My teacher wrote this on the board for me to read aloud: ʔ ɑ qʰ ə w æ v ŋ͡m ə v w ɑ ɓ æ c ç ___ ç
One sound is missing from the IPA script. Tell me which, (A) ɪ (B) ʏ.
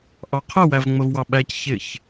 A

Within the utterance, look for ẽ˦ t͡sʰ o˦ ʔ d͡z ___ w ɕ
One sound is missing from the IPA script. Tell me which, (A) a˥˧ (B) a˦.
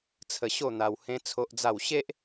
A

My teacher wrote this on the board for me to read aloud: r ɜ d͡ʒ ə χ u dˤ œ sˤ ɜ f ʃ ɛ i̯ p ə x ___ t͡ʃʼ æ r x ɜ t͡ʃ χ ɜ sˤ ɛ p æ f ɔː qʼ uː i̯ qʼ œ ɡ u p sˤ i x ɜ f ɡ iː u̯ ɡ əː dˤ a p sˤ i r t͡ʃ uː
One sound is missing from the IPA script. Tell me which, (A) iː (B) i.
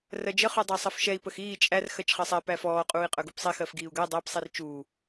A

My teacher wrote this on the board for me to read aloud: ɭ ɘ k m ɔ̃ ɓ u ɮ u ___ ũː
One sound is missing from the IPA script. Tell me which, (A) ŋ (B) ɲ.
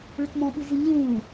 B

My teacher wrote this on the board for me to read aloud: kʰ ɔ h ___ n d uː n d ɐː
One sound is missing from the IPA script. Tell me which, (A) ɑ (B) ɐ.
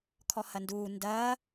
B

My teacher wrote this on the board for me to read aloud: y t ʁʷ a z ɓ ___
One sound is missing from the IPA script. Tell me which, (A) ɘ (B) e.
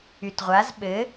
A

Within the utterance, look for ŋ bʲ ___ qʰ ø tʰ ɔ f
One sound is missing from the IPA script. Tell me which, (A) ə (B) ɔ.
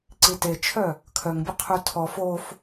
A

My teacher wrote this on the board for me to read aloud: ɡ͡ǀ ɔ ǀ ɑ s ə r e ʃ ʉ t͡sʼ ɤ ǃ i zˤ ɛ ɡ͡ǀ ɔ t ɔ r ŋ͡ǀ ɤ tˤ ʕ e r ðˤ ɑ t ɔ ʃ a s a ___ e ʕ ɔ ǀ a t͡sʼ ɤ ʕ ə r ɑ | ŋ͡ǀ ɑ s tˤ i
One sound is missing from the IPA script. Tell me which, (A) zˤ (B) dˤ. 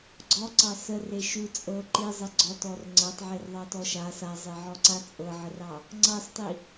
A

